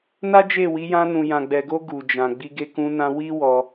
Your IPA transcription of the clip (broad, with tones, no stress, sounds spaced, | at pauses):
n a˦ d͡ʒ e˦˨ w i˨˦ j ã˧ n ũ˨ j ã˨ ɡ͡b ɛ˨ ɡ o˧ ɡ u˨ d͡ʒ ã˨ ɡ͡b i˧ ɡ e˧ k ũ˧ n ã˧ w i˦ w ɔ˧